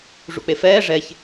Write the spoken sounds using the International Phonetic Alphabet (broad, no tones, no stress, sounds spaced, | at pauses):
ʐ ṵ k͡p e f ɛː ʐ ɛ ç